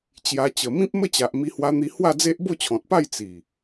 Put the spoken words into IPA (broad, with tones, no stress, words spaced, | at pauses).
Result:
t͡ɕja˧ t͡ɕə˨˩mĩ˦p̚ mə˦t͡ɕa˨ʔmi˧ hwa˧n̪i˧ hwa˥˧d͡ze˦ʔ bo˥˧t͡ɕʰɔ̃˨t̚pa˥˧j t͡si˨˩